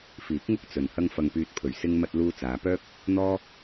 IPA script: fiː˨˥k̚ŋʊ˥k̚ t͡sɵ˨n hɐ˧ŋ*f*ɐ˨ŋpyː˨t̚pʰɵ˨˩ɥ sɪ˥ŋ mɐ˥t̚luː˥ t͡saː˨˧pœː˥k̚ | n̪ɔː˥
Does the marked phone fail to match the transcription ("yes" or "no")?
no